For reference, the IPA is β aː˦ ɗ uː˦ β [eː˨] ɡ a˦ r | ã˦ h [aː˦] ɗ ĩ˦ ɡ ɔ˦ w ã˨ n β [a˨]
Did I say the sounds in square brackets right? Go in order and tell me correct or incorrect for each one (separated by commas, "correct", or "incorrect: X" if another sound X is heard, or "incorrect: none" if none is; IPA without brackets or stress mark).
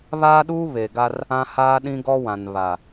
incorrect: e˨, correct, correct